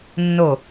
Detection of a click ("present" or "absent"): absent